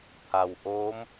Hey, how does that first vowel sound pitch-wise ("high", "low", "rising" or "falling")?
low